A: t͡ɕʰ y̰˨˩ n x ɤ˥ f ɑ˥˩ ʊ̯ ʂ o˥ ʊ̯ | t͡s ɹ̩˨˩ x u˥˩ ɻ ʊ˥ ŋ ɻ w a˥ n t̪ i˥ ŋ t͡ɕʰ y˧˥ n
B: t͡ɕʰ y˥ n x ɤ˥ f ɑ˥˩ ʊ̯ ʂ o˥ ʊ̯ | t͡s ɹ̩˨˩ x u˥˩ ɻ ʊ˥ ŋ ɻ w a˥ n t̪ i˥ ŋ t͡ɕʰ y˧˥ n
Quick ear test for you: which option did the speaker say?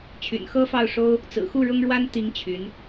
A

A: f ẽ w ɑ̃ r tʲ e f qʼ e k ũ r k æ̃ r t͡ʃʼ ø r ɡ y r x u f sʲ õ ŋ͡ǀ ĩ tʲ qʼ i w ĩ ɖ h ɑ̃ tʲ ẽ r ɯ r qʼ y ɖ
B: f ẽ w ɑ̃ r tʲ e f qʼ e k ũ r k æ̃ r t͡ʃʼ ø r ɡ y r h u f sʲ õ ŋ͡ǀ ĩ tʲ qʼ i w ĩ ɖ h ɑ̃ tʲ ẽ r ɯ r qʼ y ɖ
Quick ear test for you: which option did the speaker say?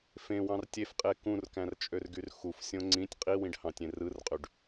A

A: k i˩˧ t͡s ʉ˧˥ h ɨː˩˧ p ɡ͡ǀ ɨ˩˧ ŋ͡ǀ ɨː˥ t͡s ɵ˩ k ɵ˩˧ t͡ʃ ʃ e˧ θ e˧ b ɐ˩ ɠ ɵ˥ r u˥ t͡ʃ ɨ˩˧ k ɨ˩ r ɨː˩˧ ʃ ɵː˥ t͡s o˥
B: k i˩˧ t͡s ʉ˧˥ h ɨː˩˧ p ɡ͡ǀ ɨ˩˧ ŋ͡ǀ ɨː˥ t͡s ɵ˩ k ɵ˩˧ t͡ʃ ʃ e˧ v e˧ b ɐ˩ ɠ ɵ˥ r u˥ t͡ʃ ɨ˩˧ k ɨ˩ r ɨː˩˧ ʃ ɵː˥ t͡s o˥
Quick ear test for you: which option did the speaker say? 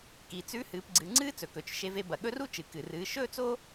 B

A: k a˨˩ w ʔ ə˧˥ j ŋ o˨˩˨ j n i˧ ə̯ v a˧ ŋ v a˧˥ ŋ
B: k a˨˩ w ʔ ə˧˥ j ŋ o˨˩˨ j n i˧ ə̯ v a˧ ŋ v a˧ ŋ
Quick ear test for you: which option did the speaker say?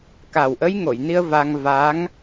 A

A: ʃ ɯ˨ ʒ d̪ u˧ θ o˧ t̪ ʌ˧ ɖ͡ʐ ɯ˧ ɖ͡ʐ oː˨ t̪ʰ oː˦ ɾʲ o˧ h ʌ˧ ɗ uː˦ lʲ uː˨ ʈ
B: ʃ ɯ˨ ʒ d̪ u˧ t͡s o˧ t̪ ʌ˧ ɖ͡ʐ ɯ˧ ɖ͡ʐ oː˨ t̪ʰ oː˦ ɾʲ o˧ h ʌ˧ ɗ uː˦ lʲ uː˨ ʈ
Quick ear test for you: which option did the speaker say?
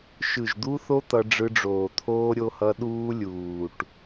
A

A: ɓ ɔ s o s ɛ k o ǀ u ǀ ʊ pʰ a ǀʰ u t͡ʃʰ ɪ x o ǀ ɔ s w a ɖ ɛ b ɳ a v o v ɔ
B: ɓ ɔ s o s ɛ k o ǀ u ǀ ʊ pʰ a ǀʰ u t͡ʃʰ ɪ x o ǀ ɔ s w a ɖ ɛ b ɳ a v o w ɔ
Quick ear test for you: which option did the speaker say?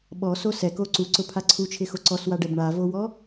B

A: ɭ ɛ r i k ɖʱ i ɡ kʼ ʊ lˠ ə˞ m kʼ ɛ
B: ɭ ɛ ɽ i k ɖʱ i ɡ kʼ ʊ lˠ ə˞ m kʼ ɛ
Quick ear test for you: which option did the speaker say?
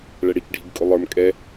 B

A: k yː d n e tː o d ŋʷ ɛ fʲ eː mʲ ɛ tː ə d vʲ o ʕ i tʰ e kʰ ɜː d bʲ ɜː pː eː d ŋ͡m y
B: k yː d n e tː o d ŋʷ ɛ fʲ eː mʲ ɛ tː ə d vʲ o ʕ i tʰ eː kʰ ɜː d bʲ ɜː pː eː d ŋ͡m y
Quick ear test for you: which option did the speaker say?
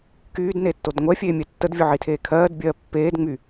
B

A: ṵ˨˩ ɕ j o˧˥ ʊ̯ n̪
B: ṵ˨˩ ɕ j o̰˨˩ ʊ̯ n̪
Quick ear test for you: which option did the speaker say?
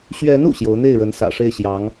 A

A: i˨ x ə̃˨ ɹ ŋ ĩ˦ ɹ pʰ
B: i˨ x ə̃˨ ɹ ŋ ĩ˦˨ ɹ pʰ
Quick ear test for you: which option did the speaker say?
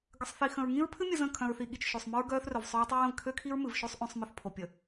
A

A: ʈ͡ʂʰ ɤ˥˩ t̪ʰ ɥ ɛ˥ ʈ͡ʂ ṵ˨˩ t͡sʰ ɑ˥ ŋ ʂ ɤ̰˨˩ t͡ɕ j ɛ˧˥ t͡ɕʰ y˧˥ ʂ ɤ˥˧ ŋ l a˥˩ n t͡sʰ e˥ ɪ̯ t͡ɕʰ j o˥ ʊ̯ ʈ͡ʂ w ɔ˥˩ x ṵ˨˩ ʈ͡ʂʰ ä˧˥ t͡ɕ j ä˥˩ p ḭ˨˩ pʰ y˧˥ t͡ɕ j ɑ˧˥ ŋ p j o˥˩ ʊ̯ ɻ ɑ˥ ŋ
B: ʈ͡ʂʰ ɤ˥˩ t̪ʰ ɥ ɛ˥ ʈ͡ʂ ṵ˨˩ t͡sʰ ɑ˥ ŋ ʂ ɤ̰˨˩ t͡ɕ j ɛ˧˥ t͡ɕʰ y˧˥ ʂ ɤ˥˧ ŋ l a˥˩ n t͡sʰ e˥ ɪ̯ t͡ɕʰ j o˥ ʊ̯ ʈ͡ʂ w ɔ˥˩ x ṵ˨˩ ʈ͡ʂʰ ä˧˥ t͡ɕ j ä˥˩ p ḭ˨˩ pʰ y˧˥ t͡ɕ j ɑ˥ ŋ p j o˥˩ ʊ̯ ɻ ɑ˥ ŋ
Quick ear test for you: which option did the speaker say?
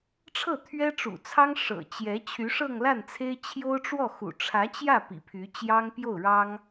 B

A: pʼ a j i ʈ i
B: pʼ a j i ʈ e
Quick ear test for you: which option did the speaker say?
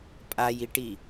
A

